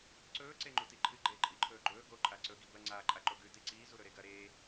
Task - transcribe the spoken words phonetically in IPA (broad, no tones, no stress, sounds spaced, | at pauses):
ǀ ɵː ǀ e ŋ͡ǃ u t i ǃʰ ɨ ɡ͡ǃ eː ǃʼ i ǃʰ ɵː ɡ͡ǃ ɵː ɡ o ǃʼ a ǀ ɵ ɡ i b ɐ ŋ͡ǀ a ǃʼ a ǃ o ɡ ʉ t i ǀ iː z u ɾ ɵ ɾ e ɡ ɐ ɾ eː